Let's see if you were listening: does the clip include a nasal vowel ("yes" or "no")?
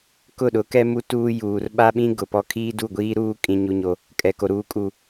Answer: yes